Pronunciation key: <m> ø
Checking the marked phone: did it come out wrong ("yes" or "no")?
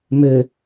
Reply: no